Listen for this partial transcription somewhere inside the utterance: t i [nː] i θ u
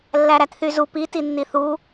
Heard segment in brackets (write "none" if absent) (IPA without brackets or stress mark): nː